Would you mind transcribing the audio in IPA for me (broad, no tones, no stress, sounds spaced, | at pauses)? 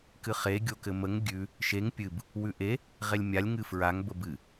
k ɨ χ e ɡʲ o k ɘ m ə ŋ ɡʲ ʉ | ʃ e ŋ pʲ ɨ b | w ʉ ʔ e | ʁ e lʲ mʲ a lʲ ŋ ɨ f ɹ a ŋ b ə b ɨ